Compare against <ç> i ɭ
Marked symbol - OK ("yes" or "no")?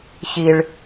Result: yes